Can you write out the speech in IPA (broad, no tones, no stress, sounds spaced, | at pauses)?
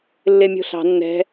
lː e mʲ o̤ ɬ ɑ̤ nː ɛ̤